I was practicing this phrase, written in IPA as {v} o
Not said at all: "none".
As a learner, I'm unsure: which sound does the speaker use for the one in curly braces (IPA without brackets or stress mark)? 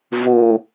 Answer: v